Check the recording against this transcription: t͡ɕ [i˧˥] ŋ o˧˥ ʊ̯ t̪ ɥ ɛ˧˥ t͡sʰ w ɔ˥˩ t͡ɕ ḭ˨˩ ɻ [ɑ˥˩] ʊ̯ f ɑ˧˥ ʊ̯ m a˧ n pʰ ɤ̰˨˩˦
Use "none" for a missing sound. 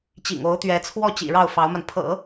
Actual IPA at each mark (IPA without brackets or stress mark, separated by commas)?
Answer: ḭ˨˩, ɑ˥˩